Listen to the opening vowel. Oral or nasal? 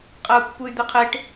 oral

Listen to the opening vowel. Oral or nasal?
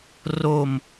oral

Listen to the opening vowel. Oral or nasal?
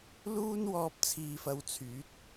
oral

